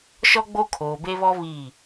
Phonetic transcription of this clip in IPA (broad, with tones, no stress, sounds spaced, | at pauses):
ʃ ɔ˦ ɡ͡b o˦ kʰ oː˨ b e˦ β ɔ˦ β i˦˨